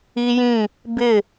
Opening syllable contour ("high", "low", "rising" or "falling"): high